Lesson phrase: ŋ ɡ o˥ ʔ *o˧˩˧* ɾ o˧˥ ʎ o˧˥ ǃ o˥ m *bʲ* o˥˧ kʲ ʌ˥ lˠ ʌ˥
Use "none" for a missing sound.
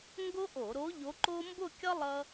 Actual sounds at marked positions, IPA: o˧˩˧, b

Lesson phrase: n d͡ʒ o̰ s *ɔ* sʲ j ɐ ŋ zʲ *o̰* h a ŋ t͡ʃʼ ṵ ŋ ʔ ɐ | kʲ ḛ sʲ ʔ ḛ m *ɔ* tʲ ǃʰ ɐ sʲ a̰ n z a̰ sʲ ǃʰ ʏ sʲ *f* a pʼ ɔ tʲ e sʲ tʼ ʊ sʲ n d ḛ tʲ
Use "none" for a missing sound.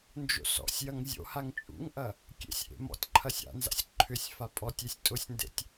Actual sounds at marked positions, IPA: ɔ̰, o̰, ɔ̰, f

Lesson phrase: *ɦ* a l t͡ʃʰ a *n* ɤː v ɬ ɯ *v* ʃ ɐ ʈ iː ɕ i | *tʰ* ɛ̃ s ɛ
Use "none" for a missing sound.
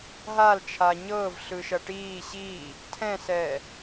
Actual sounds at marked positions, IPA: ɦ, ɲ, none, tʰ

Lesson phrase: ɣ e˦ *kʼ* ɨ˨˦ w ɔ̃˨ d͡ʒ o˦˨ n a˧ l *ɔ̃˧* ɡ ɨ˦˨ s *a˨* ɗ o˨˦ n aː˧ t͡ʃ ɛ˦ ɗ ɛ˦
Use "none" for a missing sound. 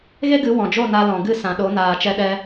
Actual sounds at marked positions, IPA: ɡ, ɔ̃˨, ã˨

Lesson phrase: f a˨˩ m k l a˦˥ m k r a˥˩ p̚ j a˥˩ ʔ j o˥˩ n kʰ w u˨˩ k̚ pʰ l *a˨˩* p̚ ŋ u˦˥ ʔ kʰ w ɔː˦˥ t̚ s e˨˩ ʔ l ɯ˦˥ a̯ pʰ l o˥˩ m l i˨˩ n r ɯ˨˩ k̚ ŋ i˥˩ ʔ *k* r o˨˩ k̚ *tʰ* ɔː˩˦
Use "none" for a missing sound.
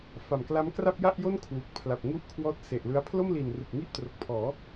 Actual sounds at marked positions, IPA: a˨˩, t, pʰ

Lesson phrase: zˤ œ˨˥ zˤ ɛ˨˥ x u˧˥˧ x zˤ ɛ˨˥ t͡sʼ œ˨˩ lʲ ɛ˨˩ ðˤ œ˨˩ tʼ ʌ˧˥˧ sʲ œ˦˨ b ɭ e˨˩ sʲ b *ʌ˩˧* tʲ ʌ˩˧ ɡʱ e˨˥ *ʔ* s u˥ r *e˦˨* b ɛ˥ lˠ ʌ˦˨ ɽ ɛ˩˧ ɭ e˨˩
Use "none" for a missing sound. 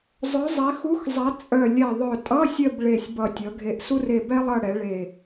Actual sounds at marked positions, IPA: ʌ˨˩, ʔ, e˦˨

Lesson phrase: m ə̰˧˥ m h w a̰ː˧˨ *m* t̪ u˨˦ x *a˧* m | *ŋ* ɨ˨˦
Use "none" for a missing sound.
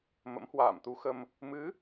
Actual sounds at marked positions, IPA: m, ə˧, m

